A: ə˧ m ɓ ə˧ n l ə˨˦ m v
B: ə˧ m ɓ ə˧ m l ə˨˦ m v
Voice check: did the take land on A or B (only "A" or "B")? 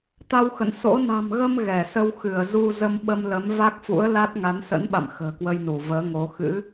B